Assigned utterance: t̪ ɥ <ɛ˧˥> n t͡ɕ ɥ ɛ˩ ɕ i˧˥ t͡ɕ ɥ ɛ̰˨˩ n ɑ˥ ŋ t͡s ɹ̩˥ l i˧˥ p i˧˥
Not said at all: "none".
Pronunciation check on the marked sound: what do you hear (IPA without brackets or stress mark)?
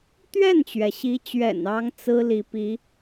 ɛ˥˩